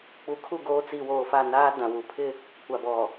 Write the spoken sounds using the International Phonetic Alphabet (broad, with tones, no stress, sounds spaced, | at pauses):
k͡p u˨ kʰ u˦˨ ɡ oː˦ t͡s i˨ w oː˨ f a˦˨ n aː˦ d ã˨ w u˨ pʰ ɪ˦ | kʷ a˨ b ɔ˨